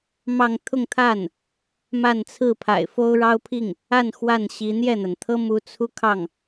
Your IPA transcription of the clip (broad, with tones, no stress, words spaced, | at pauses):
mɑ˥˧ŋ t̪ʰʊ˥˧ŋt̪ʰa˥˩n | ma˥˧nt͡sʰɹ̩˥˩pʰa̰˨˩ɪ̯ fo˥ʊ̯ɻɑ˥ʊ̯pʰi˥˩ŋ | a˥˧n xwa˥˩nɕi˧˥ n̪jɛ˥˩n̪a˩nt̪ʰɤ˥ mu˧˥t͡sʰu˥˧kʰɑ˥˩ŋ